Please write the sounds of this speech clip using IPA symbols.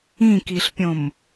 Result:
ĩ k i ɬ pʲ õ m

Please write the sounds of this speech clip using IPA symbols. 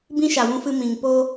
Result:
b ĩ˦ ʃ a˨ w ũ˧ f ɨ˧ m ĩ˨ ŋ p oː˦

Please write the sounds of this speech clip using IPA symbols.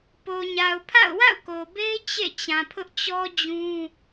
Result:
p o˨ ɲ a˨ ʊ̯ pʰ a̰˦˨ ʊ̯ w a̰˦˨ ʊ̯ k o˨ b e˦ ɪ̯ t͡ɕ ḛ˦˨ t͡ɕ ã˨ pʰ ʊ˦ ʔ t͡ɕ ɔ˦ d͡ʑ ũ˦

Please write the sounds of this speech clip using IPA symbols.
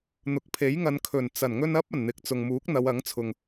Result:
n̪ ʊ˨ k̚ pʰ e˨˥ j ŋ ɐ˨˧ n kʰ ɵ˨˩ n t͡s ɐ˨˩ n ŋ ɵ˧ n ɐ˥ p̚ ɐ˨˩ n n̪ ɪ˨ k̚ t͡s ʊ˨ ŋ m uː˨˥ k̚ n̪ ɐ˨˧ w ɐ˨˥ ŋ t͡sʰ ʊ˨ ŋ

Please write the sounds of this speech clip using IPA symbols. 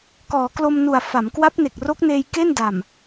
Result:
k ɔː˩˦ k l o˧ m n u˨˩ a̯ f a˩˦ m k w a˦˥ p̚ n e˨˩ k̚ r o˦˥ k̚ n eː˧ j k e˥˩ n d a˨˩ m

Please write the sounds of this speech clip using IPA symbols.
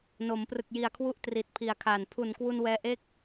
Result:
n o˩˦ m p r ɯ˨˩ k̚ j i˨˩ a̯ kʰ w u˦˥ ʔ t r i˨˩ t̚ pʰ i˨˩ a̯ kʰ aː˨˩ n pʰ u˨˩ n k w u˧ n w ɛː˧ ʔ e˥˩ k̚

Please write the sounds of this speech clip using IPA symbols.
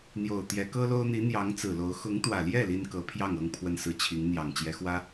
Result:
n̪ j o˨˩ ʊ̯ t̪ j ɛ˧˥ k ɤ˥ l o˥ ʊ̯ n̪ i˧˥ n̪ j ɑ˧˥ ŋ t͡s ɹ̩˨˩ l o˧˥ ʊ̯ x ʊ˧˥ ŋ t̪ w ä˨˩ l j ɛ˥˩ l i˥ n k ɤ˧˥ pʰ j ɑ˥˩ ŋ ɤ˥ ŋ pʰ w ə˥˧ n s ɹ̩˥˩ t͡ɕʰ i˧˥ ŋ n̪ j ɑ˨˩ ŋ t͡ɕ j ɛ˧˥ x w ä˥

